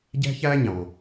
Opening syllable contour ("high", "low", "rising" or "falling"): high